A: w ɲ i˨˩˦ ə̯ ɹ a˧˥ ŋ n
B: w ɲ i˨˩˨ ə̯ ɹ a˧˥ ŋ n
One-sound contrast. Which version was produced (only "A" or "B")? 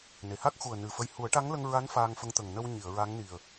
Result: B